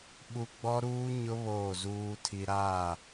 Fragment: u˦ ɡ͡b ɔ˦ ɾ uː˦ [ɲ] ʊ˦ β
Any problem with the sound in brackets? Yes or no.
no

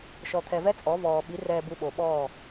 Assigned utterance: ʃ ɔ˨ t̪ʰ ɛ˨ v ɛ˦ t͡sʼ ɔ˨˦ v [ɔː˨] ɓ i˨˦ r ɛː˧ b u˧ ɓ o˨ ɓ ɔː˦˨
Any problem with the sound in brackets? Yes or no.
no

